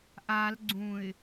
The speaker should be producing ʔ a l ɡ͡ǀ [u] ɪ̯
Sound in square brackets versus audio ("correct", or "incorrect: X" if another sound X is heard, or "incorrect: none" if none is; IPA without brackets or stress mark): incorrect: ũ